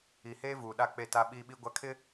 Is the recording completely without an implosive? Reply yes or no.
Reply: no